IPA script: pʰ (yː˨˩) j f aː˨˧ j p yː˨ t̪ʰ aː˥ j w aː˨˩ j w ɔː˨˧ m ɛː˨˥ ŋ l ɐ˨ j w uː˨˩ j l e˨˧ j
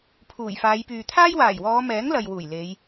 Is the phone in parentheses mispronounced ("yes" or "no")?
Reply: yes